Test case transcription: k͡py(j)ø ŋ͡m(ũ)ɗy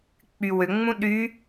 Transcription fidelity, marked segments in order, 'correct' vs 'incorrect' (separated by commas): incorrect, correct